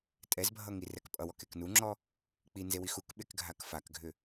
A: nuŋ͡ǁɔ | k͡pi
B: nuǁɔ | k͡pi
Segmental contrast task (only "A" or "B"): A